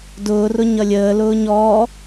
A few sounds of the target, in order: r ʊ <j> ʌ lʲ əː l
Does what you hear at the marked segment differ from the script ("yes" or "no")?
yes